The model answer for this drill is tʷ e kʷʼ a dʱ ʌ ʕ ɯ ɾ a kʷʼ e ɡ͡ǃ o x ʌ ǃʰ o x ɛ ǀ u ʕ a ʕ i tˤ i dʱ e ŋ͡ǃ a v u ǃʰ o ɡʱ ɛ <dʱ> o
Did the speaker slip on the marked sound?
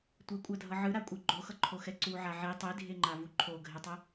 yes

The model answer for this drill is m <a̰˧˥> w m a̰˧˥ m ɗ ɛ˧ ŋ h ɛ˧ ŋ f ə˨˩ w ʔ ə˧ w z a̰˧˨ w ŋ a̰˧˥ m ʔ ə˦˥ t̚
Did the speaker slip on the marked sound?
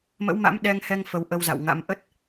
yes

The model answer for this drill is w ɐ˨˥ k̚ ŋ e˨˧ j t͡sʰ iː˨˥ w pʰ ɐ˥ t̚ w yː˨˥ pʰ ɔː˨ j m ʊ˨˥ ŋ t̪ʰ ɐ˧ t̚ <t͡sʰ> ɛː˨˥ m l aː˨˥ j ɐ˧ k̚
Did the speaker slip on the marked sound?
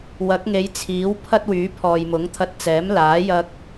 yes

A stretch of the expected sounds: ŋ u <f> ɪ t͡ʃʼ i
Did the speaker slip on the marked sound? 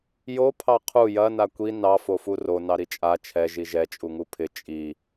yes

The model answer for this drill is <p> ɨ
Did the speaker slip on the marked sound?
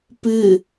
no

